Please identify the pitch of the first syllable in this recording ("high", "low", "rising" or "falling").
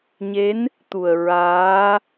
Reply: rising